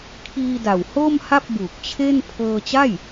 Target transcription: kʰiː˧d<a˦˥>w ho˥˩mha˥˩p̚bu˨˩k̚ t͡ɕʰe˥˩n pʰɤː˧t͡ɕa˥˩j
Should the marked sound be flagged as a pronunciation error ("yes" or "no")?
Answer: yes